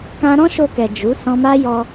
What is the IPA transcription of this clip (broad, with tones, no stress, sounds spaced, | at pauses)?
k ã˧ ɾ ɔ̃˦ ʃ o˧ k ɛ˨ d͡ʒ u˨˦ s ɔ̃˧ m a˦ j ɔ˧